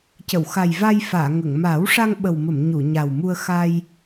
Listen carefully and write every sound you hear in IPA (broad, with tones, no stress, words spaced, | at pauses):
cə˨˩˨wxa˨˩jva˧jfaː˨˩˨ ŋə˨˩˨ŋ maː˨˩˦wʂa˧ŋ ɓə˨˩wmə˨˩˨m ɲu˨˩˨ɲa˨˩wmu˧ə̯ xa˧j